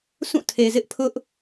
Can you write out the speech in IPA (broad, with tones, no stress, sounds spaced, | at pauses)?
s ũ˦˨ tʰ e˨ z ɪ˦ ʔ pʰ ʊ˦ ʔ